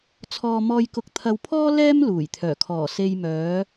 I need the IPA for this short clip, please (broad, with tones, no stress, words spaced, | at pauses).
t͡sʰɔː˧mɔː˧jkʊ˧k̚ t̪ʰɐ˧wpʰɔː˥ lɛː˥m luː˨˩jt̪ʰœː˨˩kʰɔː˨˩ se˨jmœː˨˧